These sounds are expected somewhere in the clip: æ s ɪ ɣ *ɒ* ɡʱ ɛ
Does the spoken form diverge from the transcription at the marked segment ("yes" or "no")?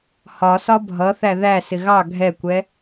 yes